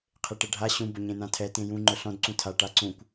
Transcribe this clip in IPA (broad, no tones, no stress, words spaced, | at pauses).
qʰeʈɛɖʱa ɕũ bʊɲẽnãtʰɛ tẽjũ ŋ͡ǃʊɬɔ̃d ǀũtʰa ʈaǀũkʷ